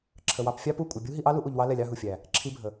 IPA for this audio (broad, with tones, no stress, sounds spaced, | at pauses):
ǁʰ ə˨ w ɑ˧ p fʲ ɑ˦ p u˦˨ kʷʼ ə˨ bʲ u˦ ɦ i˧ ʔ ɑ˦ l u˦ ʔ u˧ ʎ w ɑ˦ l ɛ˧ lʲ ɑ˦ ɦ u˨ fʲ æ˨ | ǁʰ i˦ bʱ ə˨